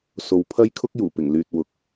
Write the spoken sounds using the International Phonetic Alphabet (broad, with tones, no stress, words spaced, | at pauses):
so˨w pʰɐ˥j kʰʊ˥k̚juː˨˩ pɪ˨˩ŋlyː˨t̚ wʊ˨k̚